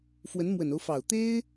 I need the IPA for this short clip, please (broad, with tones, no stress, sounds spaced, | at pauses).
f w ə˧˥ n m w ə˨˩ n o˦ ʊ̯ f ɑ˨˩ ʊ̯ t̪ e˥ ɪ̯